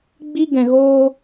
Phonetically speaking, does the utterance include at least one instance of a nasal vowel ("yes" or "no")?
yes